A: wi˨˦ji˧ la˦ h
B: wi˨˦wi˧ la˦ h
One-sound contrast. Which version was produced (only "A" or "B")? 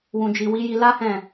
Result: A